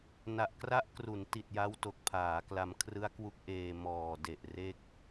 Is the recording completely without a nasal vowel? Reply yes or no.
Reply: yes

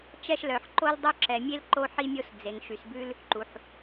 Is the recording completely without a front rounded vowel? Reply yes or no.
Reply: no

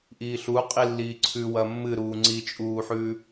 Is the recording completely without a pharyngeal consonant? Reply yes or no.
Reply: no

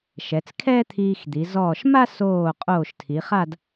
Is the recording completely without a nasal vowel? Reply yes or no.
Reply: yes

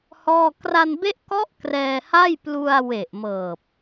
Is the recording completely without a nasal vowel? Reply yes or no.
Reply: yes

